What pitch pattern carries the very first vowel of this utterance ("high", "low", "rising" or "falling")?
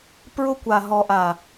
high